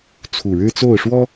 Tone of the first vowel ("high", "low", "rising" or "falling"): low